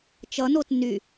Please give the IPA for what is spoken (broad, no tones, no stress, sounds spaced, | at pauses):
t͡ʃ ʌ n o t n y